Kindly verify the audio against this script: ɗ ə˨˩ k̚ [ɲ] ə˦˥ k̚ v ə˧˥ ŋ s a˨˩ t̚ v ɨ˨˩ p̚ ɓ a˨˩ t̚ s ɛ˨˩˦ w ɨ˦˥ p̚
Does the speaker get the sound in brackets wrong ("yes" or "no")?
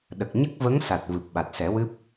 no